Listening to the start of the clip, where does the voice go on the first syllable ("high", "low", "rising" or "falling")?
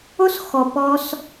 high